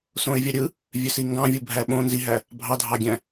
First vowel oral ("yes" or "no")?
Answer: no